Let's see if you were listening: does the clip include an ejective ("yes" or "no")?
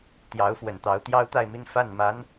no